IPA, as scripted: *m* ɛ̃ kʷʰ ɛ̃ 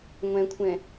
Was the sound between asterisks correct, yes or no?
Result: no